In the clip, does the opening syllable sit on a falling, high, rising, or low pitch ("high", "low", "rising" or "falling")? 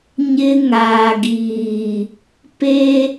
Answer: high